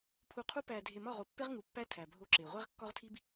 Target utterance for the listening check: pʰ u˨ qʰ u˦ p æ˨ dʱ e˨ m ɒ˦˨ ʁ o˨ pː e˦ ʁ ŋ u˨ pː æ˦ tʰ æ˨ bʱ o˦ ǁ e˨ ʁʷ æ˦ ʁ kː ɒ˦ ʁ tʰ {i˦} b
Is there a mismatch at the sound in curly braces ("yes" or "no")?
no